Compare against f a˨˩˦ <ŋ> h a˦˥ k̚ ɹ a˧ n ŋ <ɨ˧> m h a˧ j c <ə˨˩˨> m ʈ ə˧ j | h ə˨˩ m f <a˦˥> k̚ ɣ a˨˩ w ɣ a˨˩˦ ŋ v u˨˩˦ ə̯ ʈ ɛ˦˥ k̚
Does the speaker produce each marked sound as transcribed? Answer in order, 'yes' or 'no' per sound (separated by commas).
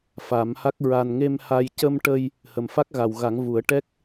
no, no, no, yes